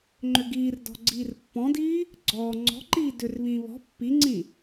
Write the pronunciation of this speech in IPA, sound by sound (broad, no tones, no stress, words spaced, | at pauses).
ŋ͡ǃʏɡiːrdɔ̤ ɡ͡ǀiːrpːɔ̃diː | ɡ͡ǀɔː ŋ͡ǀɔ̤ǃiː dʏrβĩː βɔ̤ pːiŋ͡ǀĩ